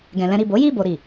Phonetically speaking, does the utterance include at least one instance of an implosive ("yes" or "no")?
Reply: no